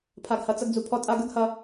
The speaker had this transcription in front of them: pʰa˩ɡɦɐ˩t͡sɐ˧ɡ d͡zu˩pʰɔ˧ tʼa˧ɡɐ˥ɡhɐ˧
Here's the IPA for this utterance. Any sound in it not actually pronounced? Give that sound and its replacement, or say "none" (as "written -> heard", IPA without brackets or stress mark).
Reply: ɦ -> h